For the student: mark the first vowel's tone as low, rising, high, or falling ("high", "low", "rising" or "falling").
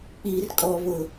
low